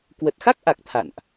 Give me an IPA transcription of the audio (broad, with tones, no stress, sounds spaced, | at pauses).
k w ə˨˩ t̚ x a˦˥ k̚ ʔ a˨˩ k̚ t̪ʰ a̰˧˨ n ʔ